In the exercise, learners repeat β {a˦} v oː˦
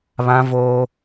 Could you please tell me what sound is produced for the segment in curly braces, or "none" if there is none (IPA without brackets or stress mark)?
ã˦